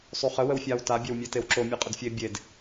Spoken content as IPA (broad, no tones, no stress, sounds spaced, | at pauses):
sˤ u χ ə w ə w fʲ a w t a bʲ ɛ w mʲ e t e w ǁ o mʲ ɨ qʼ ə d fʲ e bʲ e d